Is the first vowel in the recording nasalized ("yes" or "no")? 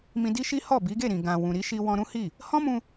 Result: yes